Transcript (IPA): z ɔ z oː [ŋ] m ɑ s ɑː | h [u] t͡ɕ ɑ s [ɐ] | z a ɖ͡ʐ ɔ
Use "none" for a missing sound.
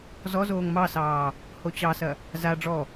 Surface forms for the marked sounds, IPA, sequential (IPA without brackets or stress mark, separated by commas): ŋ, o, ɐ